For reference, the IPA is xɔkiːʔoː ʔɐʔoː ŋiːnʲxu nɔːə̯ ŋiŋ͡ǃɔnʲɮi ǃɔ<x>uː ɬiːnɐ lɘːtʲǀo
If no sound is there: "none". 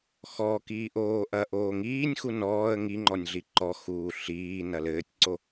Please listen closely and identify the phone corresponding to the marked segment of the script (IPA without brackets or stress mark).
x